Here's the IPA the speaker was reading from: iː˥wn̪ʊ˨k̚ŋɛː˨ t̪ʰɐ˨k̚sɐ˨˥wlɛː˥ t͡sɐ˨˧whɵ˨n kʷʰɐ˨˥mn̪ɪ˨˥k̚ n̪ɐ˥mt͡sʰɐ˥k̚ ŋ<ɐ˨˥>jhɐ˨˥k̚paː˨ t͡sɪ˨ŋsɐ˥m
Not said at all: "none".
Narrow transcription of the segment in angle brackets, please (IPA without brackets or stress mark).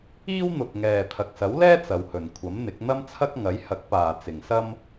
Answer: ɐ˨˥